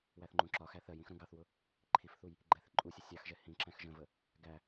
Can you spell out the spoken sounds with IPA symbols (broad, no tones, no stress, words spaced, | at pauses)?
wæθŋ͡ǃũǁɒxæ θɜj ĩxɾũɡɑθwʊ | ǃʰifθuj | ɡ͡ǃɛθɪǃʼusʲə sʲɑxʒɛ hĩǁæ̃x ʒə̃və | ɡæ